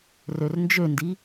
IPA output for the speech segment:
r ø r n d͡ʒ ø n d i

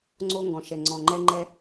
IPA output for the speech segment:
ŋ͡ǀ o˦ ŋ ɡ ɔ̃˨ ʃ ɛ˨ ŋ͡ǀ ɔ̃˨ ŋ͡ǃ ɛ˦ ŋ͡ǃ ɛ˦

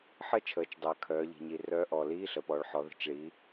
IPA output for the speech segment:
ħ ə˥˨ t͡ʃʰ əː˩˧ t͡ʃ dˤ əː˩ kʰ œː˩˧ ʎ i̤˩ ɲ i˩ r œː˧˥ ʔ ɔː˩ l iː˧˥˧ ɬ ə˩˧ p ɔː˩ ɭ ħ ɔ˩˧ ð ə̤˩˧ t͡ʃ ɭ iː˩˧

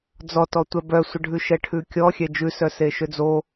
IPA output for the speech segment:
d͡z ɔ t ɔ tʷ ɛ b œ sʷ ə ɖʱ ʉ ʃ ɛ ʈʰ ʉ kʲ ɔ xʲ ɛ d͡ʒ ʉ s œ s e ʃ ø d͡z o

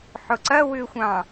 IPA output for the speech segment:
ħ ʊ ǀ ɐ w ʏ xʷ ɑ̃

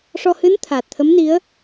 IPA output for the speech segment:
ʂ ɔ˧ h ɨ˧˥ n t̪ʰ aː˨˩ t̚ t̪ʰ ə˧˥ m n i˧˥ ə̯

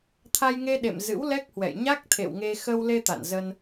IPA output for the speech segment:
t̪ʰ a˧ j ŋ e˧ ɗ ḛ˧˨ m z ɨ̰˧˥ w l ɛ˦˥ k̚ h w ɛ̰˧˨ j ɲ a˦˥ k̚ t̪ʰ ḛ˧˨ w ŋ e˧ x ə˧ w l e˧ t̪ a̰˧˨ n z ə˧ n

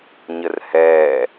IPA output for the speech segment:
ɲ ə r h ɛː

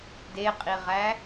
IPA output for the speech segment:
d e qʼ i ʁ æ

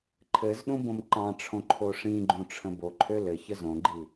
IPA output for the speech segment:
ǃʰ ɘ z ɗ ũ b õ m ǃ ɑ̃ ʈ͡ʂʰ õ ǃʰ o ʂ ĩ ɡ͡ǃ ũ ʈ͡ʂʰ ə̃ b o ǃʰ ø l ɘ ç ə z õ ɡ͡ǃ i

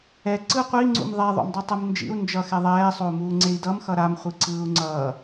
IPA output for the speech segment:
ɛ ǀ ɯ qʷ i ŋ͡ǀ ṵ m ðˤ ɛ ðˤ o̰ m dˤ u tˤ ɯ m n d͡ʒ ḭ u̯ n d͡ʒ ʌ x ɛ ðˤ ɛː sˤ o u̯ m uː ŋ͡ǀ e i̯ d ʌ m x ʌ ɾ a m χʷ i ǀ ɯː u̯ ŋ͡ǀ ʌː

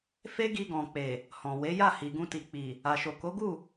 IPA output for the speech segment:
f e˦ ɡ i˧ ɡ ɔ̃˨ k͡p e˨ | h ɔ̃˨ w e˨˦ j a˦˨ h i˨ ɡ ũ˧ t i˨ k͡p i˨ | a˨ ʃ o˨ k o˨˦ ɡ u˦˨

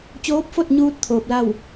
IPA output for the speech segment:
t͡ɕ oː˧˥ p̚ f o˥˨ t̚ ɲ uː˧ t̚ t̪ʰ oː˧ p̚ l a˥˨ w

